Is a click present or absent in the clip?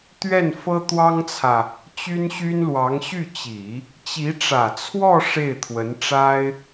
absent